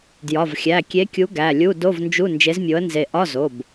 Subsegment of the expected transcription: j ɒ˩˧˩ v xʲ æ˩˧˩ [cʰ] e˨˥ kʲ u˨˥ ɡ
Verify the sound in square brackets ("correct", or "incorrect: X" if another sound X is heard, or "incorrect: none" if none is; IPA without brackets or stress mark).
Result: incorrect: kʲ